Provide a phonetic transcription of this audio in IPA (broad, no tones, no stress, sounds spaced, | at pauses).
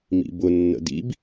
m ḭ b ʊ nː ə̰ d ḭ b